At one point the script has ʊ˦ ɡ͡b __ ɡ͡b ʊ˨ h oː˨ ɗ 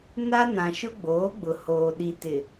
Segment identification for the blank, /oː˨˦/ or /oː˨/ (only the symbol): oː˨˦